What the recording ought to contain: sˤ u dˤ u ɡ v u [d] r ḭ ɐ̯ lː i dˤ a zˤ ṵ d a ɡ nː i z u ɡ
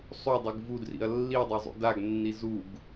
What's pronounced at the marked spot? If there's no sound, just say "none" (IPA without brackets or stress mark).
d